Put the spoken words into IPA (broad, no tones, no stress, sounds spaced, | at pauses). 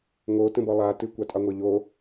ŋ o t ə̃ b ɔ lˠ a t ɨ kʷ a tʼ ɑ ŋʷ ə˞ ʎ o